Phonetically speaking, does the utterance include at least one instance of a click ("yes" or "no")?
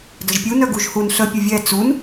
no